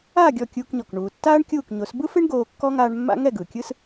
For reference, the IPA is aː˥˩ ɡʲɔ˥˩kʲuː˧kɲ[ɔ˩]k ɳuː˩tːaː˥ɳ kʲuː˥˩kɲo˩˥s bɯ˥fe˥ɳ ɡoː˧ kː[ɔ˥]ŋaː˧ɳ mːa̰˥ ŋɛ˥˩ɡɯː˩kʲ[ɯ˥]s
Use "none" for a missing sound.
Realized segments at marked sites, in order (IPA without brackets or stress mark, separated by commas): ɔ˩, ɔ˥, ɯ˥